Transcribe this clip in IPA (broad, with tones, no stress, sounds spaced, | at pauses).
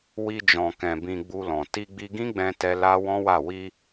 w i˧ d͡ʒ ɔ̃˨ k ɛ̃˨ b ĩ˨ ɡ͡b u˧ l ɔ̃˨ t i˧ ɡ͡b i˧ ɡ ĩ˦ ɡ͡b ɛ̃˧ t ɛ˧ l a˦ w ɔ̃˦ w a˦˨ w i˧